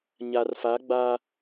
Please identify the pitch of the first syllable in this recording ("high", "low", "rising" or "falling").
low